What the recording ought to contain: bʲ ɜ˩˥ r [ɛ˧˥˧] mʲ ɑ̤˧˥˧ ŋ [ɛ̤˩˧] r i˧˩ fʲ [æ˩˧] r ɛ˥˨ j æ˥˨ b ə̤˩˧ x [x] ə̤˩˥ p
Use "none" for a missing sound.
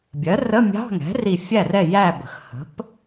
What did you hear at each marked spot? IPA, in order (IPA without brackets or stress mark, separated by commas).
ə˧˥˧, ɛ̤˩˥, æ˥˨, h